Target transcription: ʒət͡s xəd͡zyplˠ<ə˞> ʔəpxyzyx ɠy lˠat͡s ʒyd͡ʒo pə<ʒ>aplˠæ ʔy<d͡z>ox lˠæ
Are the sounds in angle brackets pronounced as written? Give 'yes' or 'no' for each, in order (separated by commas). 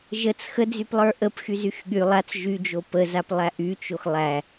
yes, no, no